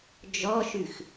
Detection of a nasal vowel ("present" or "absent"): absent